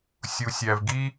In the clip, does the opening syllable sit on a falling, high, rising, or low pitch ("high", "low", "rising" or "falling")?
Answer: low